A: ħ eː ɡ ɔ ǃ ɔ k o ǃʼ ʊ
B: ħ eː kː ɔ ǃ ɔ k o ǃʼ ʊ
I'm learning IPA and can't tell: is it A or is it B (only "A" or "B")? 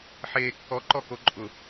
B